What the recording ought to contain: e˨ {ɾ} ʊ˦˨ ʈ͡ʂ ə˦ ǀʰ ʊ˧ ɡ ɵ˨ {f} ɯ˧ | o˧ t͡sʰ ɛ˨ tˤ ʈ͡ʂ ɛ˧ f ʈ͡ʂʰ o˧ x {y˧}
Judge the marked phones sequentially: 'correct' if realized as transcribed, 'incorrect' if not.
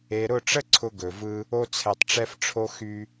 correct, incorrect: v, correct

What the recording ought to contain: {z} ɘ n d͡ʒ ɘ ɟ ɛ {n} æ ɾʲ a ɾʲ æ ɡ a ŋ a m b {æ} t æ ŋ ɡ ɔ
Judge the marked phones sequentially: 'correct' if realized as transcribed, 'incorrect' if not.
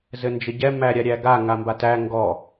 correct, incorrect: m, incorrect: a

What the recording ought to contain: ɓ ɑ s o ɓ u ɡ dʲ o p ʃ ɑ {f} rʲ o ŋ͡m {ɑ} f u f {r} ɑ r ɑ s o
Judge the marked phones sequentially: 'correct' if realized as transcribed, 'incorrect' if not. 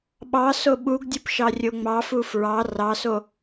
incorrect: none, correct, incorrect: ɹ

